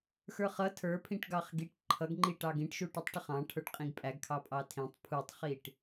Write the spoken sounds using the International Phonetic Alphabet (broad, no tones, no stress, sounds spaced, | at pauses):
x ə˞ χ ʌ tʰ ə˞ pʰ ĩ ʈ ɡ ɑ χ ɡ i ʈ ǃʰ ʌ ɡ ŋ͡ǃ i ʈ ɑ ɡ ĩ ʈ ʃ u ʈ u tˤ ʈ ʌ χ ɑ̃ ʈʰ ə˞ ʈ qʼ ĩ ɡ pʼ æ ɡ kʰ ɑ pʼ ɑ tʰ ĩ tˤ pʰ u tˤ χ i ʈ